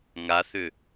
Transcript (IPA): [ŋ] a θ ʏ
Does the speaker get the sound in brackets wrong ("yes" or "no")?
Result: no